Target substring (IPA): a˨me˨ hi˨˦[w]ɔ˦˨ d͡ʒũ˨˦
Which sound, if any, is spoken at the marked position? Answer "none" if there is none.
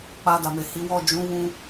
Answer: w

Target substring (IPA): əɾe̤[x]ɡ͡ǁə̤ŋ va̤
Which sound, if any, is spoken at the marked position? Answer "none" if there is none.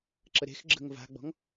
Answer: x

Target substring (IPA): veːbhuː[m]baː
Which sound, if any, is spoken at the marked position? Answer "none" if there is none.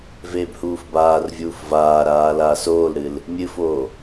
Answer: f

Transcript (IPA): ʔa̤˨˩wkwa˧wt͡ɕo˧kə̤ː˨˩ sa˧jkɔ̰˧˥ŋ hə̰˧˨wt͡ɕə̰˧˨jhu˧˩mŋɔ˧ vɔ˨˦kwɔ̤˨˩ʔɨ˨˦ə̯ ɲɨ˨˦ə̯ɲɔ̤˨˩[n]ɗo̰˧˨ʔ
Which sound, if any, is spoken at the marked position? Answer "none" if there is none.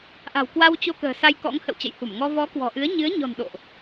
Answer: n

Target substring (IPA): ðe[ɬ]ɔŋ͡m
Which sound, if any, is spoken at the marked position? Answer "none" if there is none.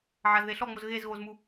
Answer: ɬ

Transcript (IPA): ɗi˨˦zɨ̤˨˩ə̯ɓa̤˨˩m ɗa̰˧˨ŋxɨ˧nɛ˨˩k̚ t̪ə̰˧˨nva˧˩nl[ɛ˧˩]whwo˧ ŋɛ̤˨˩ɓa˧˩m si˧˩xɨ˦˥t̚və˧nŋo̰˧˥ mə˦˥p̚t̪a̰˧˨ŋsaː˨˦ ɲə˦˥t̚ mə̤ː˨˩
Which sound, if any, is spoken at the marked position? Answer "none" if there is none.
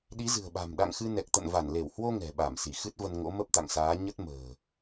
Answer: e˧˩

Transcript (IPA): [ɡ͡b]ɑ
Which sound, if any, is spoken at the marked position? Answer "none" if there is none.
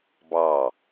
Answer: b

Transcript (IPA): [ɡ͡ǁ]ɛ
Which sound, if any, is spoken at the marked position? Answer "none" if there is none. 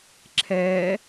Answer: ǁʰ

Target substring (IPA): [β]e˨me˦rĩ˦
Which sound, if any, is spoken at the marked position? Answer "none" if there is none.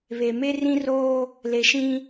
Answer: β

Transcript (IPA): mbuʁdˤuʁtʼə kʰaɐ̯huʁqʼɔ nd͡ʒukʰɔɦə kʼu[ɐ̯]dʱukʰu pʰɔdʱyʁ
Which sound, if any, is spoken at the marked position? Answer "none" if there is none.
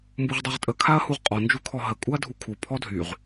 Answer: ɐ̯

